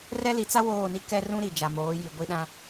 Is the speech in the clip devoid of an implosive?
no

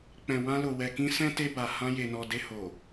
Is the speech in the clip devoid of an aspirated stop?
yes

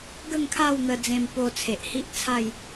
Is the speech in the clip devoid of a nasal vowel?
no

